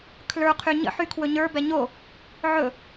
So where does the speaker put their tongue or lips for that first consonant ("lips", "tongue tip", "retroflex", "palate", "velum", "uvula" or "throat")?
velum